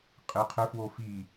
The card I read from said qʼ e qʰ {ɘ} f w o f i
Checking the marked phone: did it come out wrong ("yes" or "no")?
no